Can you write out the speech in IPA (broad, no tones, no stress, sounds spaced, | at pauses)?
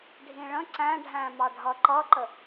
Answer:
ɖʱ ĩ ɭ ə̃ ǀ æ̃ ɖʱ æ̃ m ɑ ɖʱ ʌ ǃ ʌ ǃ ə